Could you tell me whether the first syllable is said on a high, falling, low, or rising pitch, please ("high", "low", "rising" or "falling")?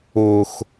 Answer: low